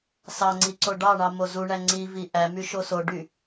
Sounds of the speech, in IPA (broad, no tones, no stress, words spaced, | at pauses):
sɑŋ͡ǀi ǀoɖɑɳɑ mozuɳæ ŋ͡ǀivi ʔæmy ʃosoɖy